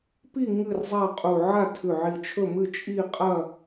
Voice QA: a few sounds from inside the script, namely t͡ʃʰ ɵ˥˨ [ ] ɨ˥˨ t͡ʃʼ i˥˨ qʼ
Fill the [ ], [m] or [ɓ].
m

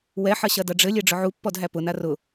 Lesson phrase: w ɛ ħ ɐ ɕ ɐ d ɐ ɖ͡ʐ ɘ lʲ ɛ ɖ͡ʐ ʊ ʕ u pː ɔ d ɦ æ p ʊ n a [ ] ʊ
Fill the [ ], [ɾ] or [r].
r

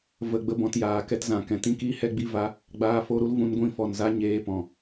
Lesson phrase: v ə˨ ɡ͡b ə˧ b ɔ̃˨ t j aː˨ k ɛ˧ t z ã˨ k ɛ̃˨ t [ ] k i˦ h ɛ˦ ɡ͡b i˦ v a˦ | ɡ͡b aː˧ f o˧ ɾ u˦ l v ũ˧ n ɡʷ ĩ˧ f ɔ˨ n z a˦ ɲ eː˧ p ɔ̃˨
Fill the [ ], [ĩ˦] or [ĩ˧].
ĩ˦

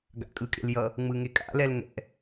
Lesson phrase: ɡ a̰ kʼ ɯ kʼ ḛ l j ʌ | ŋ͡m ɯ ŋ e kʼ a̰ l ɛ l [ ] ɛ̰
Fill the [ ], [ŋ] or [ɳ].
ŋ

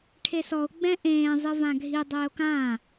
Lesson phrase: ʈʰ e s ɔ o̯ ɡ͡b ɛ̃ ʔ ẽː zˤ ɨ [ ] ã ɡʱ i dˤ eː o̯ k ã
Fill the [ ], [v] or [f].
v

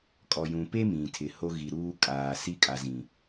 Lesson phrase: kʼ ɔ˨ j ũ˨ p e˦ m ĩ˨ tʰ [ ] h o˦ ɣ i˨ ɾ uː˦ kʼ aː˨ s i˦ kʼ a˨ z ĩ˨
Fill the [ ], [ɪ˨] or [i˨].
ɪ˨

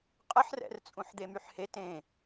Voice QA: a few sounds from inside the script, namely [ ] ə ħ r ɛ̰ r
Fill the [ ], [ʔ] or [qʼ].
qʼ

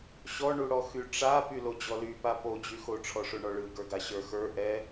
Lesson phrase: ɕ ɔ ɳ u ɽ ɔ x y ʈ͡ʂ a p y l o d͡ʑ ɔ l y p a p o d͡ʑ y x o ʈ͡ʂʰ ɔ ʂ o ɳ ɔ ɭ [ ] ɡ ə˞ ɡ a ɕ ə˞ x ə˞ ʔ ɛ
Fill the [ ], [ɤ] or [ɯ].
ɯ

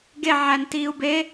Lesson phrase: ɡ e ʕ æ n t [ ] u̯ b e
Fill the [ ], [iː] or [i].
iː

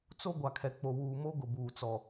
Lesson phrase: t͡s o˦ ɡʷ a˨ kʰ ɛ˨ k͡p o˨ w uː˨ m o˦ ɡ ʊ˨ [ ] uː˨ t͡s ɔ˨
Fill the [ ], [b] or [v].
b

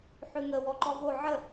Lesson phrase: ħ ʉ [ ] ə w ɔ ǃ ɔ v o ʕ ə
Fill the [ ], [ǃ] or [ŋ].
ŋ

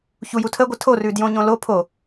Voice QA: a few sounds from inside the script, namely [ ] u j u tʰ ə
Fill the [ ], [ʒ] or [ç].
ç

